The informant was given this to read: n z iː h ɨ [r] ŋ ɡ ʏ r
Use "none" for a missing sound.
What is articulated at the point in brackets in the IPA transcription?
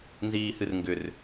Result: r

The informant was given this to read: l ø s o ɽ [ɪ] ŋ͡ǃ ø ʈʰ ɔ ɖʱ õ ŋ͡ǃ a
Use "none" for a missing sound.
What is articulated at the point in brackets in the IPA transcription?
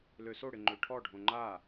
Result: ɪ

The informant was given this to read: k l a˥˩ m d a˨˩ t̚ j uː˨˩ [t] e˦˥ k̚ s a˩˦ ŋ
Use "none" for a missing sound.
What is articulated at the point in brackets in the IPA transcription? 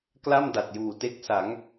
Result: t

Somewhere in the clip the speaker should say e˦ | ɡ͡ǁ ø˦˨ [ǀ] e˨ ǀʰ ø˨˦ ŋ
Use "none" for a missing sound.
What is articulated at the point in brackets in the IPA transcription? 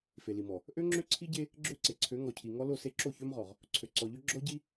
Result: ǀ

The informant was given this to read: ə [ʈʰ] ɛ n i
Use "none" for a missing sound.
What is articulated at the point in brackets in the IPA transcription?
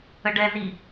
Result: ɖ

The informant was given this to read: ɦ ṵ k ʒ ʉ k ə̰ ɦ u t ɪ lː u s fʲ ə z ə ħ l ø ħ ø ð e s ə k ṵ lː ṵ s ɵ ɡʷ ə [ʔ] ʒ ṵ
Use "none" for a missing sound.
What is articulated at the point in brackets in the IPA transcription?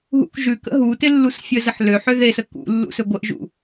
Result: ʔ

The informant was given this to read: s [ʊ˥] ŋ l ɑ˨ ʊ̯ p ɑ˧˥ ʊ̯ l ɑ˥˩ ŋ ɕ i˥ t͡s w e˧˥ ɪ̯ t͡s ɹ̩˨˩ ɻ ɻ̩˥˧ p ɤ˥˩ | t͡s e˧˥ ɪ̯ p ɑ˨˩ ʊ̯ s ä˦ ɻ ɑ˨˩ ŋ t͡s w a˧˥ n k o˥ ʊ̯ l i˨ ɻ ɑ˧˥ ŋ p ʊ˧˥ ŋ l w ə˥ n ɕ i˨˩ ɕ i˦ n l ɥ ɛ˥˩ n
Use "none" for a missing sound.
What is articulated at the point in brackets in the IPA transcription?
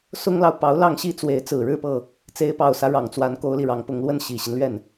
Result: ʊ˥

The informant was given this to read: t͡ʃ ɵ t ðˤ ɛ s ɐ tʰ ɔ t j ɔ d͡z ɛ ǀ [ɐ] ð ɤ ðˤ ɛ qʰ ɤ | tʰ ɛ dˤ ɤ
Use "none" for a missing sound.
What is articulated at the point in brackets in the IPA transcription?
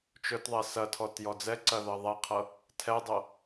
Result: ɐ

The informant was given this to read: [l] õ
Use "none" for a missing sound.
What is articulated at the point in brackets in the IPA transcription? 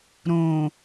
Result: ɾ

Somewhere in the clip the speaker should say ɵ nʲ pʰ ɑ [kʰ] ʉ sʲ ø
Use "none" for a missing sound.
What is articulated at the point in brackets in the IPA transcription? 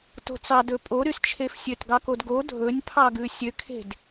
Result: ɡ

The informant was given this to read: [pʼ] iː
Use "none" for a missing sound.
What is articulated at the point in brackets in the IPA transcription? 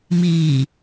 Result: m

